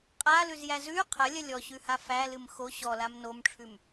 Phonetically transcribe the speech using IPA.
qʼ a l ʉ z j æ z ʉ qʰ ɐ lʲ ɐ lʲ ɔ ɕ ʉ h a f æ l ɨ m x o ɕ ɔ l a m n o m ʈ͡ʂʰ ʉ m

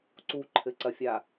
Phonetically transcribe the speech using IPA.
ǀ u ǃʰ ɘ ǀ ɐ fʲ a

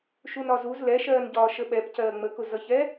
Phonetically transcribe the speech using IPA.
ʃ u n ɒ z u z l ɛ ʃ ɜː n ɟ ɒː ʃ ə ɓ ɛ p c ɜː ŋ͡m ə k ʊ z ʌ ç ɛ

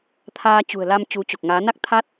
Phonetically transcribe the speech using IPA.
t̪ʰ aː˧ t͡ɕ ṳ˨˩ ə̯ l a˧ m t͡ɕ u˨˦ t͡ɕ o˨˩ k̚ ŋ aː˨˦ n a˦˥ k̚ t̪ʰ a˦˥ t̚

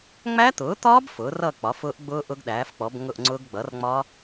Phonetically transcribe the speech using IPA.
ŋ͡m æ˦˥ t̪ ʊː˩˥ t̪ ɒː˦˥ b f ʊː˩˥ r ʌː˥˨ k͡p ɒ˩˥ f ʊː˦˥ ʔ ɡ͡b ʊː˦˥ ʔ ʊ˦˥ ɡ ɗ æː˩˥ f k͡p ɔ˩˥ b ŋ ʊ˥˨ ʔ ŋ͡ǀ ʊː˦˥ ɡ ɡ͡b ʌ˩˥ r ŋ͡m ɒ˦˥

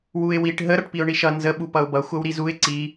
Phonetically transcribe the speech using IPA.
w u ɪ̯ w i ʈ ɦ ə ɾ ʌ ʈ p i ʊ̯ ɳ i ʃ ʌ n z ə ɓ u p ʌ ʊ̯ b ʌ xʷ ʌ w ɾ i z u ɪ̯ ǀ i

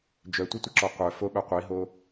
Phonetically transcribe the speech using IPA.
d͡ʒ œ tʷ ə tʷ ɪ ǁ ɔ qʷ œ f o ɓ œ qʷ i ɦ o

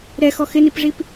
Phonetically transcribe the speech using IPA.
ɾ ɛ x ɔ x ɪ n i p ʐ i p

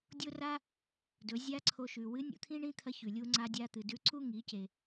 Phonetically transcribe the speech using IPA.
dʲ o˥ r a˥ | d ɵ˩˧ zʲ a˥ ǀʰ o˧ ʃ ʉ˩ w ɨ˧˥ nʲ ṵ˧ t̪ʰ ĩ˥ ɳ ĩ˥ t̪ʰ ɐ˧˥ ç ʉ˩ lʲ u˧ ŋ͡ǀ a˧ dʲ a˧ t̪ ɨ˩ d ʉ˧ ǀ u˥ ŋ i˩˧ c e˩

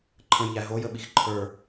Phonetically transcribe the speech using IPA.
ǃʰ ə̃ j ʎ æ ɦ o j ə ɓ i x ǃʰ ə˞

